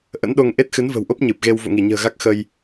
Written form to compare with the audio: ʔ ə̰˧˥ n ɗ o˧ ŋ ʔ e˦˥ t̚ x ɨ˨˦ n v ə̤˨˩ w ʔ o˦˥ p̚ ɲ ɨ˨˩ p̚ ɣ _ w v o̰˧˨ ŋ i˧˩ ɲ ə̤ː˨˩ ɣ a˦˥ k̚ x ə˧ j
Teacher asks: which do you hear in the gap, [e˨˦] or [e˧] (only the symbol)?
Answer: e˧